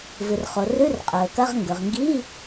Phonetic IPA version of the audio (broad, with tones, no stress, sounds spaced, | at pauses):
v ɨ˩ r χ o˩ r ʉ˧˥˧ r qʼ ɵː˩ k ɐ˧˥˧ ʁ ŋ ɡ ɵ˩ ʁ ŋ ɡ iː˧˥˧